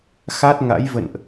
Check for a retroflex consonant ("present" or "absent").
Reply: absent